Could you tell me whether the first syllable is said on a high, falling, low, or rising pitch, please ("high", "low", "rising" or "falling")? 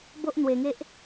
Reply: high